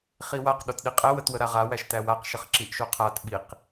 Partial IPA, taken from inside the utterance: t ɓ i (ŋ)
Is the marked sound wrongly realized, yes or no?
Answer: yes